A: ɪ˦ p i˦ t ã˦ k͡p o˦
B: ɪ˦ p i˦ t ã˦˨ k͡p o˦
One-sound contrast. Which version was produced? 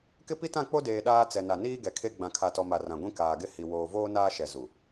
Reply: B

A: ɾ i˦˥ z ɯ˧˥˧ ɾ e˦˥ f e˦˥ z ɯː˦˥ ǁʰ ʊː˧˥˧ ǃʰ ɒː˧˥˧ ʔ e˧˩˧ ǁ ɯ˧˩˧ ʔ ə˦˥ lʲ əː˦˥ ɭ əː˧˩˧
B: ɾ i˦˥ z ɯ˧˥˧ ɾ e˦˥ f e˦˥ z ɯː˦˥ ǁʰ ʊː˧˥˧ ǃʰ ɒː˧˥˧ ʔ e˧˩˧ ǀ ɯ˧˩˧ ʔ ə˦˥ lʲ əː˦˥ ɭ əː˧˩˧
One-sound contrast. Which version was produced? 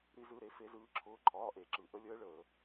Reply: A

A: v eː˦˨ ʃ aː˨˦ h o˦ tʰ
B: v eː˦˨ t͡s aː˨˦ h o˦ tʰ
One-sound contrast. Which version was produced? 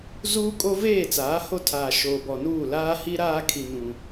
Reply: B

